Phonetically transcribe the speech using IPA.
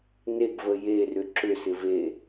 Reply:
neɡvə jerʏ ǁʏsɪ ve

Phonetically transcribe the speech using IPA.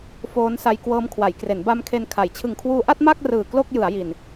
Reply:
foː˦˥n sa˧jkwɤː˦˥m kʰwa˩˦jkre˩˦n ba˧m kʰe˧nkʰa˩˦j t͡ɕʰɯ˨˩ŋkʰwuː˧ʔa˥˩t̚ ma˥˩k̚ rɯː˨˩ klo˥˩k̚jɯ˩˦a̯ ji˨˩n

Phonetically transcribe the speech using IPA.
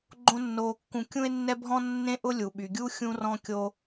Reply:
ɡ͡ǃõ˥nːoː˧kːũ˧ kʲũ˥e̯nːɛ˥bʱɔ̃˥ nːẽ˥ʔʊ˥ lʲu˩ɓy˩ɡʲu˥ xʲũ˧rɔ̃˧ kʲo˧

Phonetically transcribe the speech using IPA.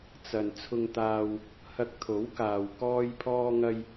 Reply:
t͡sɐ˨n t͡sʰʊ˧ŋt̪aː˧w | hɐ˧k̚t̪ʰo˨˥wkaː˨w kɔː˧jpʰɔː˧ŋɐ˧j

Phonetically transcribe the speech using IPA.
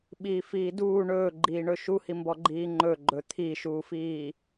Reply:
ɓiːfiːduː ɳɵːɡ͡ǃiːɳɵ ʃuhimbɔ ɡ͡ǃiːŋ͡ǃɵɡ͡ǃɵ t̪ʰiʃuːfiː

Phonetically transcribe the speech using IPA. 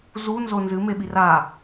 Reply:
zunzo nzɨmeɓi ra

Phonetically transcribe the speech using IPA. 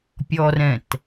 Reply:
pʲɔrɛ̃t

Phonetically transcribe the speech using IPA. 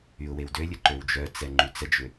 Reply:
yʊ̯wewdølʲə ǃøwd͡ʒœt͡sɛ ŋ͡ǃyt͡səd͡ʒʏ

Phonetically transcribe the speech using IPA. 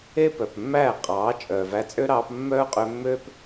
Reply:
e˦pœ˨pmːæː˦˨ qʼɑː˨˦ t͡ʃʼœː˨væ˧t͡sʼø˦ɾɑː˧p mːœː˦qʼø˧mːøː˦p

